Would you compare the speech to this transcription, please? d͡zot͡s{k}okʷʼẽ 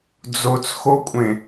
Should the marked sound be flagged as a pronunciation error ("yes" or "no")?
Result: yes